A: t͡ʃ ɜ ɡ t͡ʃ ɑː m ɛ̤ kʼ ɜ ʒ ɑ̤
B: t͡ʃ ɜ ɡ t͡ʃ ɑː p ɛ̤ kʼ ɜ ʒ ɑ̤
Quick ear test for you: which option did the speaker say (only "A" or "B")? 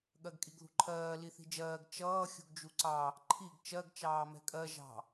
A